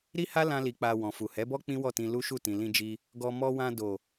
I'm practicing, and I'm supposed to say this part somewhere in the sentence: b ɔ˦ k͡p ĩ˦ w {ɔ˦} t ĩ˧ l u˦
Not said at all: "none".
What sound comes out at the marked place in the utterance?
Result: ɔ˦˨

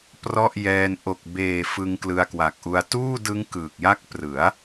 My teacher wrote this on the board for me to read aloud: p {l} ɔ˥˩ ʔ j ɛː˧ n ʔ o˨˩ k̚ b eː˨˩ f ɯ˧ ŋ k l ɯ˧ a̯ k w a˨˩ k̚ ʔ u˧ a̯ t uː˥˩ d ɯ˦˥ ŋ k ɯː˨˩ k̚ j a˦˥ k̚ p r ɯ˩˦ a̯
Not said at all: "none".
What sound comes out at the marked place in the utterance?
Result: r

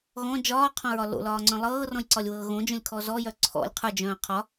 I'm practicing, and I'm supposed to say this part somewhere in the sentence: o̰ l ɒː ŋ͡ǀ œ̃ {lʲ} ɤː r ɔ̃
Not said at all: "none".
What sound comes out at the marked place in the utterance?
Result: lˠ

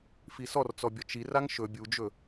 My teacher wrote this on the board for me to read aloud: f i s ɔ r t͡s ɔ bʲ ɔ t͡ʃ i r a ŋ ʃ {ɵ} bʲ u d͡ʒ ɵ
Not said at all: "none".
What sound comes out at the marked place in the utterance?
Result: ɵ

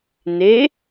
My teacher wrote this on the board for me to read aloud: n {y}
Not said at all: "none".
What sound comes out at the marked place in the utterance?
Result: e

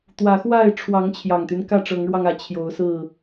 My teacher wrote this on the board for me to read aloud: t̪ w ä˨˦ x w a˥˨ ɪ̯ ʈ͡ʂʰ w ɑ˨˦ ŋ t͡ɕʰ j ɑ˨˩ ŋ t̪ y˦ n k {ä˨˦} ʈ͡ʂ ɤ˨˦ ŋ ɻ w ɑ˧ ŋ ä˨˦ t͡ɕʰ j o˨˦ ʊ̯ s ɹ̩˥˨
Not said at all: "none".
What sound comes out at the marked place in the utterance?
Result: ä˥˨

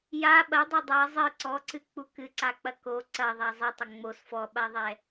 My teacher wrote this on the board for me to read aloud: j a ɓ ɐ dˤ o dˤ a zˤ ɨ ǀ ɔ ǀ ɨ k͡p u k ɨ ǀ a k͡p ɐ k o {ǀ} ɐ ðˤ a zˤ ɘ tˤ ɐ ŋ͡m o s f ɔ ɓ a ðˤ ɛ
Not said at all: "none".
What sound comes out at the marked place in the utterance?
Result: ǀ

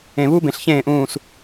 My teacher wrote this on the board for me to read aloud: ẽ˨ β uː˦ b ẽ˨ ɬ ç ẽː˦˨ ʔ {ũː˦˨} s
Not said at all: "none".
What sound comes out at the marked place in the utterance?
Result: ũː˦˨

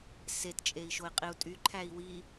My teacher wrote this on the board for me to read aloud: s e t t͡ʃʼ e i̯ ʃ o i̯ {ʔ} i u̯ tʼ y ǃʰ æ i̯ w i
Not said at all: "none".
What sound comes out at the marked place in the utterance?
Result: qʼ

